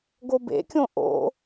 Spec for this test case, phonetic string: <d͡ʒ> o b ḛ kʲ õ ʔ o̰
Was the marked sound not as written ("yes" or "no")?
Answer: yes